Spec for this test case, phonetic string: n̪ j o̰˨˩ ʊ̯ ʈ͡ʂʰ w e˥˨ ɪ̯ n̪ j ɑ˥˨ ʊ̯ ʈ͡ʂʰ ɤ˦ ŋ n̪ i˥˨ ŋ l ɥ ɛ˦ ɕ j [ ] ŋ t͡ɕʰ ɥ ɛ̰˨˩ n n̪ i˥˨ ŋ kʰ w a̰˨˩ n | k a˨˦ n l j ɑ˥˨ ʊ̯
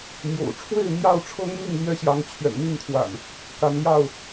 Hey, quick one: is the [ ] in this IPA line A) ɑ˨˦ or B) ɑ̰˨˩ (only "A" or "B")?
A